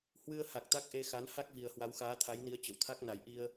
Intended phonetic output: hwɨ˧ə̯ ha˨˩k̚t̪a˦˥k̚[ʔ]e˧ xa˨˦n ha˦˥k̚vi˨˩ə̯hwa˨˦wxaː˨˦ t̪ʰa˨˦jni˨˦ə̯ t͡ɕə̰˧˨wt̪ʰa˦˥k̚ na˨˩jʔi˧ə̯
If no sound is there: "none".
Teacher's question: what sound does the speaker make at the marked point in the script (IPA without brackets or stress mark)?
ʔ